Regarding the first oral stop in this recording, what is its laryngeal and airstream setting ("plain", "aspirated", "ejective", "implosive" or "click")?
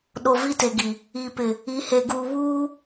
implosive